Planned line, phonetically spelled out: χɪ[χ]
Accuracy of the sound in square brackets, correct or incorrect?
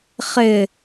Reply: incorrect